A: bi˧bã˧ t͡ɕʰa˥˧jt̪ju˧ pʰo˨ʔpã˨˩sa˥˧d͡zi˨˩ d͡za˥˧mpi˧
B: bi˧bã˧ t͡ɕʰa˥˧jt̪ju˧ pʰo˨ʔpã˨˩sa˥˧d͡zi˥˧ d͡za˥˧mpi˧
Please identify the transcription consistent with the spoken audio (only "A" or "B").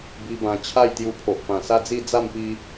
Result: B